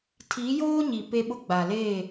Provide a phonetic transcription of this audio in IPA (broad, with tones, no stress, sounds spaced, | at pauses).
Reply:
tʰ i˨˦ j oː˦ ɲ i˨ p e˦ ɓ ʊ˦ ɡ͡b a˨ l eː˦˨